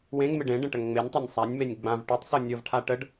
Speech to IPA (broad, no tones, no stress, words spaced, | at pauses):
wẽŋmɪɖ ẽ ɖə̃ʈəŋŋ͡menʲtˤanʲ sˤanʲmenʲ ɡ͡bãv ʈytˤsɤ nʲɤvʈʰa ʈəɖ